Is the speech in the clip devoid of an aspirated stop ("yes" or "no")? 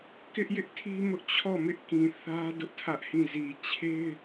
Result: no